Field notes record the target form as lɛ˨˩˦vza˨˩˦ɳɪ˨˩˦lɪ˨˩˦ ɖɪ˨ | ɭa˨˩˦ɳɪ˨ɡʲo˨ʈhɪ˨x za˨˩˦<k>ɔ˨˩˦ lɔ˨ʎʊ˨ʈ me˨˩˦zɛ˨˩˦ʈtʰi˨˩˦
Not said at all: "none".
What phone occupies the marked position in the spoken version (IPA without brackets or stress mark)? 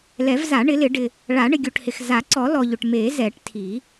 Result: ǀ